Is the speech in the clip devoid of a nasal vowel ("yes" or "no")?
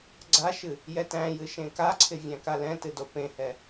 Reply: no